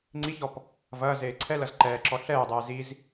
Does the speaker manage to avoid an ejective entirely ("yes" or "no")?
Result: yes